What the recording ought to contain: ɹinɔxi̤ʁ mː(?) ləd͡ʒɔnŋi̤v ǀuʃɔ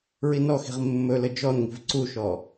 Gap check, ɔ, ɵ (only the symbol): ɵ